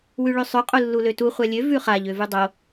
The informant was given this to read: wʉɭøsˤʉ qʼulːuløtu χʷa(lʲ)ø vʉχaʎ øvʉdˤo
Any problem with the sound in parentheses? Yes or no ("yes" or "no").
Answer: no